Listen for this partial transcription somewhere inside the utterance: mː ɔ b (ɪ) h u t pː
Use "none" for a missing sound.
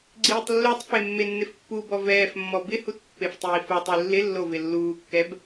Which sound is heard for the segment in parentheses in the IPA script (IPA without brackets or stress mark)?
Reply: ɪ